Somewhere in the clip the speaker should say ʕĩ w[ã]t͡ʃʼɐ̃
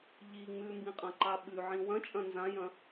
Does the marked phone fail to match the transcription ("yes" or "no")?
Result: yes